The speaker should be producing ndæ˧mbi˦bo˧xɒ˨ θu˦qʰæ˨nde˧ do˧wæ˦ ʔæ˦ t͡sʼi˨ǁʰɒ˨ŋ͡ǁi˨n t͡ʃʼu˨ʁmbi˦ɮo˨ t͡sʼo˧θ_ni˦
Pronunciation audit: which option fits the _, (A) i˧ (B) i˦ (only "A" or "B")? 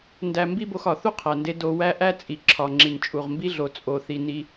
A